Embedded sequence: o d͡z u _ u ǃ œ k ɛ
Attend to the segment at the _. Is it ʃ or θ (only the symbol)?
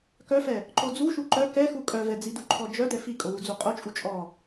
ʃ